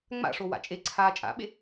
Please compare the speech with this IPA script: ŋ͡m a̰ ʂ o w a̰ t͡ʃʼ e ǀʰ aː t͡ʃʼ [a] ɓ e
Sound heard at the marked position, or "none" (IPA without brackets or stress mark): a̰